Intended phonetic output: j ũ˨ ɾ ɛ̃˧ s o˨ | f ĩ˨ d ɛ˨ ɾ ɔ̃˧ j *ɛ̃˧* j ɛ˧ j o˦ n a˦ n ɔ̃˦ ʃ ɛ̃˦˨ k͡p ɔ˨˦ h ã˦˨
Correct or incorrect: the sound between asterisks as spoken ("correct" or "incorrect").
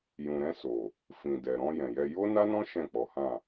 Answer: incorrect